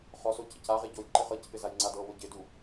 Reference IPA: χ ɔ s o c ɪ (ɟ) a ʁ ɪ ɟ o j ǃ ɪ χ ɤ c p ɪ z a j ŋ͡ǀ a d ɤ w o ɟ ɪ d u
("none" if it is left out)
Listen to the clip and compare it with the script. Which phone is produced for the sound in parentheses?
c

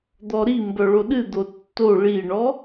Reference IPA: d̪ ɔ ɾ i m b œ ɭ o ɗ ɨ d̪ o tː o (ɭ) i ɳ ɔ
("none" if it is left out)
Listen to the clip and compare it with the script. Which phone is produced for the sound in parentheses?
ɭ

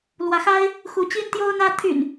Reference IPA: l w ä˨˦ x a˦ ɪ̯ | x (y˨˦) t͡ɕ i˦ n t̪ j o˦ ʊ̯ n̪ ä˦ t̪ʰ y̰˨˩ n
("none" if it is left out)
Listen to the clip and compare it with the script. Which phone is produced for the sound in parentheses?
u˨˦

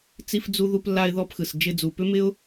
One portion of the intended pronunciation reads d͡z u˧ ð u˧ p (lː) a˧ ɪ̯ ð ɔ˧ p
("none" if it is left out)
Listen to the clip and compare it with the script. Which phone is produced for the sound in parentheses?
lː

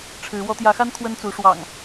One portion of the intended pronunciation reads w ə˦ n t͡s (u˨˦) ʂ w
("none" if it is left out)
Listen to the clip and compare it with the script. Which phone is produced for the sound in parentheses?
u˨˦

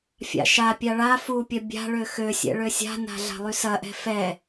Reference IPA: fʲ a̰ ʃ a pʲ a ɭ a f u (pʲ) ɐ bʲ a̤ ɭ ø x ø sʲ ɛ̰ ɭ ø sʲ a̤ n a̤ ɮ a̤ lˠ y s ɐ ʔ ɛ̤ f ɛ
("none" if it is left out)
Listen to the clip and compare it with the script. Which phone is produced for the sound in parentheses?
pʲ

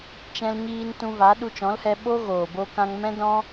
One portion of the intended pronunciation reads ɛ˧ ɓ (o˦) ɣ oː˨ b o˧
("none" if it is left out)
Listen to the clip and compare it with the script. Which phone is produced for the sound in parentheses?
o˦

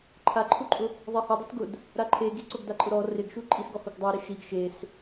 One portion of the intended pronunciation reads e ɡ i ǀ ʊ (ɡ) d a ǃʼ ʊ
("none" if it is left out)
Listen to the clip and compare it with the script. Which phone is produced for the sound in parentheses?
ɡ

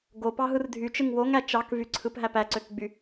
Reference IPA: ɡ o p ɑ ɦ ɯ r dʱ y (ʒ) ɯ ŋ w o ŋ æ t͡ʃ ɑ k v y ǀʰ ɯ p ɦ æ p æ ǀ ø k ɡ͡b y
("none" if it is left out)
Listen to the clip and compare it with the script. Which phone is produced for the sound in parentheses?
t͡ʃ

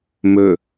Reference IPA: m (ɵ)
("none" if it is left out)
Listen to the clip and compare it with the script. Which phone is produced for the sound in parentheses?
ɵ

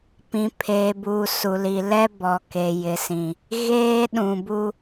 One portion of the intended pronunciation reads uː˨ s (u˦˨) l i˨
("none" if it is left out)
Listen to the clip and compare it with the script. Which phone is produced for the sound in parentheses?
u˨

